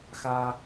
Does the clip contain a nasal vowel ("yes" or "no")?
no